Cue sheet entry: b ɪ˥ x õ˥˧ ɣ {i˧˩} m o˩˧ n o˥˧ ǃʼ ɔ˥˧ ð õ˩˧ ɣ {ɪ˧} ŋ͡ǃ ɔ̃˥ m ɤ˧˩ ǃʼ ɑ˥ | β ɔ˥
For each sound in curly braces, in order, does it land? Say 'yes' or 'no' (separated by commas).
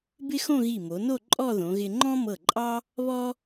yes, yes